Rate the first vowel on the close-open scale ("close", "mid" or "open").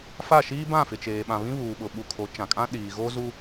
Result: open